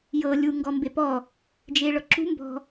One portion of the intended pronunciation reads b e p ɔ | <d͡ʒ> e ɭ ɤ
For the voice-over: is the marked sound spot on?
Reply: yes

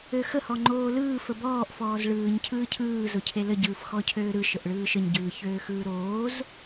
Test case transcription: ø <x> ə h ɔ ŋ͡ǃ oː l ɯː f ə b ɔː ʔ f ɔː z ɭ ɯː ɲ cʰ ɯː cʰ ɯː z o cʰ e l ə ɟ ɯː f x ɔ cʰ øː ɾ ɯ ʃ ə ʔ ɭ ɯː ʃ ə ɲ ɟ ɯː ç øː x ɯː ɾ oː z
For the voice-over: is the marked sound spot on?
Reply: yes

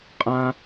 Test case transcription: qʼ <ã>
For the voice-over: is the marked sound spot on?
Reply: yes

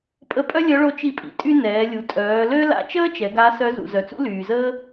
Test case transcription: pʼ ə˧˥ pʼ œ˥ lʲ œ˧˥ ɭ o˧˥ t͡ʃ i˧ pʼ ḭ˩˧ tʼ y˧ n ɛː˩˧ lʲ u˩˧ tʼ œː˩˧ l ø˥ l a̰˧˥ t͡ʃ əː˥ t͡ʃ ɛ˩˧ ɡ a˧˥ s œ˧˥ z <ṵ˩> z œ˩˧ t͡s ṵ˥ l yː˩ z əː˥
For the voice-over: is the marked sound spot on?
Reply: yes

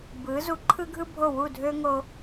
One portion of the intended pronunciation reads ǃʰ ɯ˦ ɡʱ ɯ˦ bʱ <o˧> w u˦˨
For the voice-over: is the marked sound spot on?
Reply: no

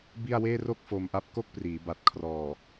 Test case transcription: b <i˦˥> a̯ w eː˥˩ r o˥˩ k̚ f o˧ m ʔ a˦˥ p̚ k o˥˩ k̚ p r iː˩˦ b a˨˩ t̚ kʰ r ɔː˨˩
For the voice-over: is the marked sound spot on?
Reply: no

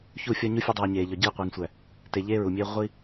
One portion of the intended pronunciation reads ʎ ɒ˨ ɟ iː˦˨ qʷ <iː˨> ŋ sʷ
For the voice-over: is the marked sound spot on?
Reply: yes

